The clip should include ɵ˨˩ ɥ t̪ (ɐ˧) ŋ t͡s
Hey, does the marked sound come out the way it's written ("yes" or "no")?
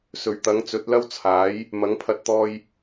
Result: no